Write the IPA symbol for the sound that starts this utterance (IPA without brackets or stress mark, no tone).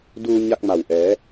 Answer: d